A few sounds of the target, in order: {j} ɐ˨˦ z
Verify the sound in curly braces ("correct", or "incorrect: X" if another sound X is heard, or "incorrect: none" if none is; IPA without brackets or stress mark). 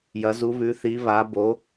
correct